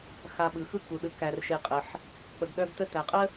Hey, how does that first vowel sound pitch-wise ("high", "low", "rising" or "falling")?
low